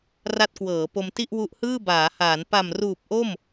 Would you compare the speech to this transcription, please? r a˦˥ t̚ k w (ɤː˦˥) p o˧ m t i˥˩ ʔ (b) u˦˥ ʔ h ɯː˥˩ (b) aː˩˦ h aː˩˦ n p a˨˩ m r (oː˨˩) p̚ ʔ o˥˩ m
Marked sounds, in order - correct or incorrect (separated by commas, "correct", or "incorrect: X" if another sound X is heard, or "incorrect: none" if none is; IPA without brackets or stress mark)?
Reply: incorrect: ɤː˩˦, incorrect: w, correct, incorrect: uː˨˩